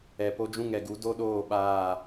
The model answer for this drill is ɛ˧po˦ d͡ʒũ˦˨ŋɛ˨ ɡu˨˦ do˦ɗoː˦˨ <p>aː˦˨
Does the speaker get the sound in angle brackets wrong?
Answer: yes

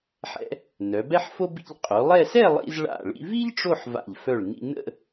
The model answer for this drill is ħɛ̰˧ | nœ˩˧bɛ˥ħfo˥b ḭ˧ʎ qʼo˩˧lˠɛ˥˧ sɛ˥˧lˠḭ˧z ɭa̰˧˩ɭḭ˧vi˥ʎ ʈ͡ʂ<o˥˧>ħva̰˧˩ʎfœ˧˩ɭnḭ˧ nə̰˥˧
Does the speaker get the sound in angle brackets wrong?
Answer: no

